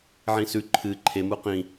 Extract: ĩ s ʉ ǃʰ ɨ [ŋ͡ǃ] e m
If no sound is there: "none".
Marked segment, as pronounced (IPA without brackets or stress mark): ǃʰ